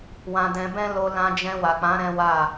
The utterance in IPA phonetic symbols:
wã˧dɛ̃˧bɛ̃˦ lo˧lã˧ d͡ʒɛ̃˧wa˨k͡pã˨˦ ɾɛ̃˦wa˦˨

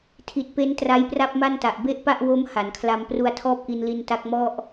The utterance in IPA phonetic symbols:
tʰi˨˩t̚pe˦˥n tra˦˥jpra˥˩p̚ma˥˩nta˨˩ʔ be˥˩ʔpa˥˩ʔ wo˦˥m ha˩˦nkʰla˧m pru˧a̯tʰɔː˥˩p̚ʔi˧nli˧n ta˦˥k̚mɔ˥˩ʔ

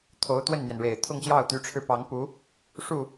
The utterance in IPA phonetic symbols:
t̪ʰo˧˥ʊ̯t̪wə˥˩nn̪jɛ˩nɻe˨˩ɪ̯ t̪ʰʊ˥˧ŋɕjɑ˥˩ʊ̯t̪y˧˥ʈ͡ʂʰɻ̩˧ pɑ˧˥ŋ pu˧˥ | ʂu˥˩

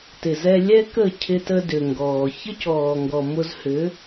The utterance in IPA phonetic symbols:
tɪ˨z ɛ˧lʲɛ˦kə˦˨ cʰɪ˧tə˧dʏ˨ ŋɡɔː˨ çə˦cɔː˨ŋɡɔ˨ mʊ˧zhʏ˨˦

